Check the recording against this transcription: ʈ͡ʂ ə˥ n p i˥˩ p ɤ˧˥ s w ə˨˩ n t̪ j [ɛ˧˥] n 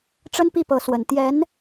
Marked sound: correct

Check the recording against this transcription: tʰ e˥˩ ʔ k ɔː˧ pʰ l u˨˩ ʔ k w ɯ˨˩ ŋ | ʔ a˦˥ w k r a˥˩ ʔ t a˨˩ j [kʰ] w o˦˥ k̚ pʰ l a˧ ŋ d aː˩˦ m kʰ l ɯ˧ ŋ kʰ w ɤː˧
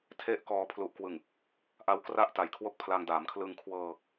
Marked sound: correct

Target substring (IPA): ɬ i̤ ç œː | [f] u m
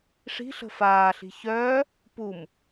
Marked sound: incorrect: p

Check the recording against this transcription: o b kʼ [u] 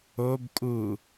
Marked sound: correct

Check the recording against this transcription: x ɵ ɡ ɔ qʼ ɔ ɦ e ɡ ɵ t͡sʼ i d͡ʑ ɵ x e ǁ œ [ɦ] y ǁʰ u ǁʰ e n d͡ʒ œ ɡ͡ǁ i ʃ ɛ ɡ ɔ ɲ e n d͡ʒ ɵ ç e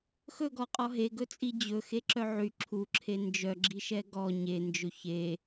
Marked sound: incorrect: ʕ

